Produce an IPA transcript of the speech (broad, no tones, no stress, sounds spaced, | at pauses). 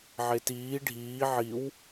ʕ e t iː ɖʱ iː ʕ i w